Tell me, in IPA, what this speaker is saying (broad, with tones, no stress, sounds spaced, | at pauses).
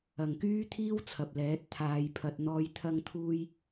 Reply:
ɐ˨ ŋ k yː˥ t̪ʰ iː˥ w t͡sʰ ɐ˨ p̚ l ɛː˨˥ t̚ t̪ʰ aː˨˧ j pʰ ɐ˨ t̚ n̪ ɔː˨˧ j t̪ʰ ɐ˧ ŋ t̪ʰ uː˧ j